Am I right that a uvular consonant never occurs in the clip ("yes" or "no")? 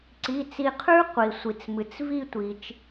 no